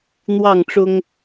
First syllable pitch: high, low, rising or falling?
falling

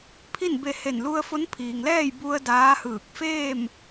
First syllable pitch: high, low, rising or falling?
falling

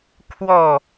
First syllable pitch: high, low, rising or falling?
falling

